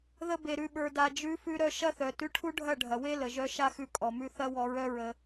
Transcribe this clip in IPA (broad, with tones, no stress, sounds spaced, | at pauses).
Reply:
ð ə˧ b e˨ ɾ ʉ˨ ɓ ə˞˨ d a˨ d͡ʒ ʉ˨˦ f ʉ˧ ɾ œ˧ ʃ ɐ˦ θ œ˨ t ʉ˧ ʈʰ u˦ ɖʱ ɐ˦˨ ɖʱ ɐ˨ w e˦ l ə˨ ʒ œ˧ ʃ a˦ x ʉ˧ kʼ ɔ˨ m ʉ˧ θ ɐ˦ w ɔ˧ ɹ œ˦ ɹ ə˧